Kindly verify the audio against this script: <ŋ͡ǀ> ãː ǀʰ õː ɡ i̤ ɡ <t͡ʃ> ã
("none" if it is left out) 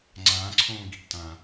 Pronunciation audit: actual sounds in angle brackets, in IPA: ŋ͡ǀ, t

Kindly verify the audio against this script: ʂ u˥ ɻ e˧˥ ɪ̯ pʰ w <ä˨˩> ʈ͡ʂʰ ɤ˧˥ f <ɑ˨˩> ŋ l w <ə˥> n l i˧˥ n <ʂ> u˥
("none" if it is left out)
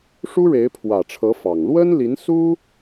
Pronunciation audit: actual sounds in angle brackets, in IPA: ä˨˩, ɑ˨˩, ə˥, s

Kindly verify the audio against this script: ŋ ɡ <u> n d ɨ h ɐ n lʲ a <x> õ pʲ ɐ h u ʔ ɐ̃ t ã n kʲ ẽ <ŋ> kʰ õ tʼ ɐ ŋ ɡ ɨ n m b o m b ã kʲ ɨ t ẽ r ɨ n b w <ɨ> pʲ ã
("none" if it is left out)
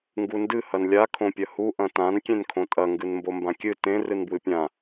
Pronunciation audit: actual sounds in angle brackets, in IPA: u, kʰ, n, ɨ

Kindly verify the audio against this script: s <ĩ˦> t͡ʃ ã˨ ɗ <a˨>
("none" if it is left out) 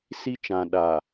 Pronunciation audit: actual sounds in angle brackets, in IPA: i˦, a˨

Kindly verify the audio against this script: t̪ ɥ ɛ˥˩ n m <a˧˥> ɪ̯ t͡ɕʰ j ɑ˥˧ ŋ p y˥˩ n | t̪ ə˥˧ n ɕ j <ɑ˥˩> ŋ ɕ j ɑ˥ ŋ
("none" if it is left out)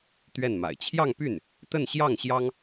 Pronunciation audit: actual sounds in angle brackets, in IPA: a̰˨˩, ɑ˥˩

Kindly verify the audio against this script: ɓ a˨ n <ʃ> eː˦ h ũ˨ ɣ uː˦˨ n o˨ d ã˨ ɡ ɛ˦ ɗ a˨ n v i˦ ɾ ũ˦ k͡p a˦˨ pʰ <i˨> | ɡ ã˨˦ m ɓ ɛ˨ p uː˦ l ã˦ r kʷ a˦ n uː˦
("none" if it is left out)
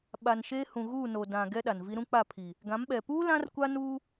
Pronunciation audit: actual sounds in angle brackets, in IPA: ʃ, i˨

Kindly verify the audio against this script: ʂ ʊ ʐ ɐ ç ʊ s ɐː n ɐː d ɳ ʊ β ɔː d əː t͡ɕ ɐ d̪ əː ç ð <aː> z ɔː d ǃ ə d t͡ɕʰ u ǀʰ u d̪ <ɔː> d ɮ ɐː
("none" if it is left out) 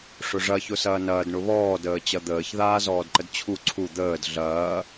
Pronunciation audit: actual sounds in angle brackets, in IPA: aː, əː

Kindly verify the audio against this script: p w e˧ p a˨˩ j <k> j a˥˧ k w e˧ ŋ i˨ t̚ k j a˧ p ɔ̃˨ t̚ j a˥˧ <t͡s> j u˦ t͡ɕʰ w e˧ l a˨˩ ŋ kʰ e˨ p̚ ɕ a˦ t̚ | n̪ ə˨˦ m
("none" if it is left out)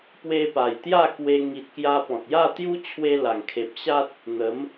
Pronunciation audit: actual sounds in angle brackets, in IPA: t̪, t̪

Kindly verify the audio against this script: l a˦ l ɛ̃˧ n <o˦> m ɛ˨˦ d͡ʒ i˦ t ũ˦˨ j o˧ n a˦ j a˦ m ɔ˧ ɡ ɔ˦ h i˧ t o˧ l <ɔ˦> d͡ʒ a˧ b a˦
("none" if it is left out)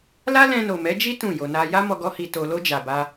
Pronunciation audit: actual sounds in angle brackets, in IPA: o˨, o˦

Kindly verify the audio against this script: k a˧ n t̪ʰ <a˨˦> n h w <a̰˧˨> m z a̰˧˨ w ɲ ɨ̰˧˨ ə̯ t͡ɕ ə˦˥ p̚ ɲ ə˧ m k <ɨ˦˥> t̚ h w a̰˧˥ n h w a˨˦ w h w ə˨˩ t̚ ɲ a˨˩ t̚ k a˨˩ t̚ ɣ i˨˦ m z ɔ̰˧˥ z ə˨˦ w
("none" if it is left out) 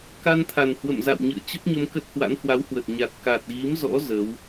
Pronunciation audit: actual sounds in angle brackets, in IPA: a˨˩, ə̰˧˨, ə˦˥

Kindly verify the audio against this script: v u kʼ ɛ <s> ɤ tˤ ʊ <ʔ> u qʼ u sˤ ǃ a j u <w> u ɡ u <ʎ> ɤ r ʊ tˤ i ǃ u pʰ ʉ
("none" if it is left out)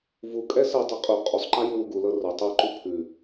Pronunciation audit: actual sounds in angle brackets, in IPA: s, qʼ, w, l

